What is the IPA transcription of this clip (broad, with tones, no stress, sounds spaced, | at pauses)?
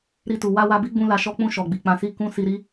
ɾ i˧ t u˨ w a˧ w a˧ b i˦ ɡ͡b ũ˧ l a˨ ʃ ɔ˧ k͡p ũ˧ ʃ ɔ˨ ɡ͡b i˨ k͡p ã˧ s i˦ k ũ˧ s i˧ ɾ i˦